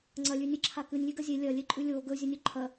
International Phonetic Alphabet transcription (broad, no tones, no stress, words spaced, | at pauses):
ŋ͡ǀɐlʲʉnʲɨǁʰa kɨnʲlʲʉɡɐ zʲe lʲɐlʲeǃʼʉ lʲo ɡɵzʲɵnʲɵ ǃʰɐ